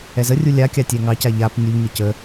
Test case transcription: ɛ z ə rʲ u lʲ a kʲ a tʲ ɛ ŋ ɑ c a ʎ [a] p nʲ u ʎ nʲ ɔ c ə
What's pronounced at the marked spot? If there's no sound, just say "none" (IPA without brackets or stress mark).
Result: a